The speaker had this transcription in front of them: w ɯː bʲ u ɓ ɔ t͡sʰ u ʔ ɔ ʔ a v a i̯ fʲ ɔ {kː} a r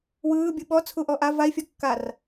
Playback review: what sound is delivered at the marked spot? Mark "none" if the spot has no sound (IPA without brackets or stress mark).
kː